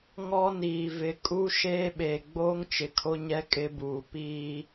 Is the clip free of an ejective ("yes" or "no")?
no